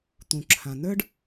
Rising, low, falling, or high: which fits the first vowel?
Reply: low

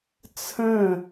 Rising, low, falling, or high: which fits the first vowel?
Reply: falling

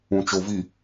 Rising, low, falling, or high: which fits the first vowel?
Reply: low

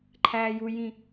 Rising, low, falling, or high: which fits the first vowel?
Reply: high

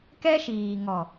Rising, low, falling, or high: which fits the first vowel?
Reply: high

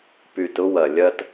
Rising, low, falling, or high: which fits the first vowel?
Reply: low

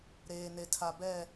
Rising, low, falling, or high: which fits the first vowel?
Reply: low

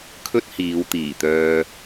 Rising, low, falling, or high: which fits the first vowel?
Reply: high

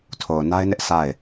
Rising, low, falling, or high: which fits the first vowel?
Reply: low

